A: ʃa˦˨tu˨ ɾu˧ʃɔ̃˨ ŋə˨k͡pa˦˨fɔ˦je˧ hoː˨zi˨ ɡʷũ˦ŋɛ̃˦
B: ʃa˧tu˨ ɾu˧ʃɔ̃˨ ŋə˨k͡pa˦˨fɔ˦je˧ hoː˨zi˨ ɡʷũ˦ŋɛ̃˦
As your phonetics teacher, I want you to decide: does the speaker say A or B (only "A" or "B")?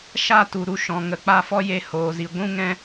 A